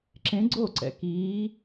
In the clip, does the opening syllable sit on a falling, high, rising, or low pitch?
rising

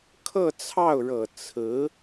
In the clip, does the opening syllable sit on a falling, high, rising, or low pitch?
falling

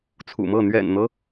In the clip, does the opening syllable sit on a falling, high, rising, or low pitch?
low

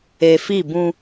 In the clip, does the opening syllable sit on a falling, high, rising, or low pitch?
low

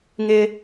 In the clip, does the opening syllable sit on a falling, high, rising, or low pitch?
high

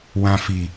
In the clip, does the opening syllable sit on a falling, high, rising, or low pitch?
low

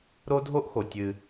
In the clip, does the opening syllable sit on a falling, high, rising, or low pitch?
high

